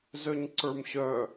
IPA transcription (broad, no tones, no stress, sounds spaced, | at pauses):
z œ ɲ ǀ ə˞ m ɕ œ